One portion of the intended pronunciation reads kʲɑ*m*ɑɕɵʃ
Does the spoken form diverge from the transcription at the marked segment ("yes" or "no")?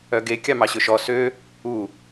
no